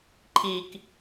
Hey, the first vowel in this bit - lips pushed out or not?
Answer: no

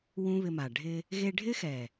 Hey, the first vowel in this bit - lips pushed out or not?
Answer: yes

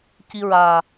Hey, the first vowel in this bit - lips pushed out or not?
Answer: no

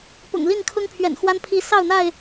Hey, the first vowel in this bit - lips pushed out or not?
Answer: yes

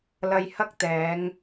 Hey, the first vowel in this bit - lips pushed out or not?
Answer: no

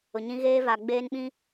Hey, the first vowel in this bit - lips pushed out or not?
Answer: yes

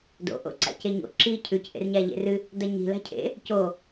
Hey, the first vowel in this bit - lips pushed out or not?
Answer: yes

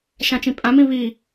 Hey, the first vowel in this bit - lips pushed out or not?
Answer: no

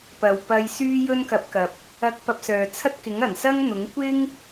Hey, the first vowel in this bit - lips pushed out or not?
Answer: no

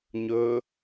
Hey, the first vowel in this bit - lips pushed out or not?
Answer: yes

